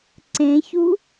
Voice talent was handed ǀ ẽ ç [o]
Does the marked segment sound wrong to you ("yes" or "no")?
yes